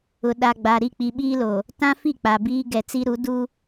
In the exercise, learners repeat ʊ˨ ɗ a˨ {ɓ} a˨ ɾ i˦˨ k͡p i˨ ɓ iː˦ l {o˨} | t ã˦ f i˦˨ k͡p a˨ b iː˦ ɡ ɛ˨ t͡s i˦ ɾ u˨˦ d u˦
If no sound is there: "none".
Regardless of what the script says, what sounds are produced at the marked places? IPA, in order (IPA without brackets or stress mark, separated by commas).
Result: ɡ͡b, o˨